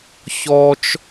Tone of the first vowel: high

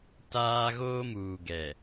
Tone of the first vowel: high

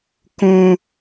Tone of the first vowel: high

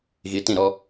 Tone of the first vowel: rising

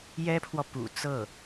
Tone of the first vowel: high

